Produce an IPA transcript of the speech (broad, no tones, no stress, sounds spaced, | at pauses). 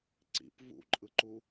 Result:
ǀ ḭ p v ṵ ǃʼ ɯ ǃ u